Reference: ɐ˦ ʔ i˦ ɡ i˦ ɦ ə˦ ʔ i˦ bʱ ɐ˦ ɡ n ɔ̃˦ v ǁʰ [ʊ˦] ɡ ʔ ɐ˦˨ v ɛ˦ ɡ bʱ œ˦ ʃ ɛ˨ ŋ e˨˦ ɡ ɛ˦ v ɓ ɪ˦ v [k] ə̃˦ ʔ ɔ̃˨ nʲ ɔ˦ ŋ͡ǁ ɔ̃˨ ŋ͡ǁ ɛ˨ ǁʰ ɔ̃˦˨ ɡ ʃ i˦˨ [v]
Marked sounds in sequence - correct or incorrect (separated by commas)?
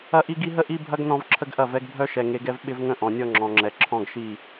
incorrect, incorrect, incorrect